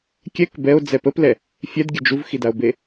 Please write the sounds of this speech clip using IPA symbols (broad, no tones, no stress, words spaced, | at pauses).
kʲɛk bɛo̯ d͡zɛpəplɛ | fʲɛdɡʲə d͡ʒuvxidao̯be